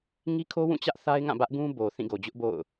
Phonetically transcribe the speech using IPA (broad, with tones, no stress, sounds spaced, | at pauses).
ŋ i˦ kʰ o˦ w ũ˦˨ t͡ɕ ä˦ ʔ θ a˦ ɪ̯ ŋ ã˦˨ b ä˦ ʔ ɡ ũ˦ b o˨ θ ĩ˦˨ ɡ o˨ d͡ʑ ʊ˦ ʔ b o̰˦˨ ʊ̯